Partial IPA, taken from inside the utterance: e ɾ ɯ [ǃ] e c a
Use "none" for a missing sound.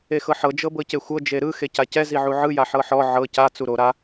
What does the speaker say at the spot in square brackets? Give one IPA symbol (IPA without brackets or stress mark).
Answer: x